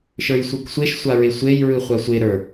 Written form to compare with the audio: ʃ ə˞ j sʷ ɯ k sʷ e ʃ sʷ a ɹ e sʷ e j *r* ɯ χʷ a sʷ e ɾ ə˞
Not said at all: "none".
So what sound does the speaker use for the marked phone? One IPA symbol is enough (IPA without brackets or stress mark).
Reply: ɹ